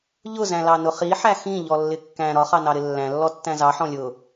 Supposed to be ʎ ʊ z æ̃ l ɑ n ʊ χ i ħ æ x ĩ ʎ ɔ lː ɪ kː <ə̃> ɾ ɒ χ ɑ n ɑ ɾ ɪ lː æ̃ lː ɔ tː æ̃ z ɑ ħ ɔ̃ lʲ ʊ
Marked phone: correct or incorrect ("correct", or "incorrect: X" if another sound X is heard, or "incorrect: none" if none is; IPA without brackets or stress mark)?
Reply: incorrect: æ̃